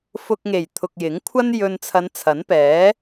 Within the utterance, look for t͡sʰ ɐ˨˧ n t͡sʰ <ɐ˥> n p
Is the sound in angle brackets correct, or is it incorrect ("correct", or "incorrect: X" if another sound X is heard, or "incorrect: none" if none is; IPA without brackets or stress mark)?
incorrect: ɐ˨˥